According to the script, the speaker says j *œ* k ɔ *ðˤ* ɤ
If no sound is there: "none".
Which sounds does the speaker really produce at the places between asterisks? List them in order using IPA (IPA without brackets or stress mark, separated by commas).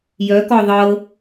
œ, ðˤ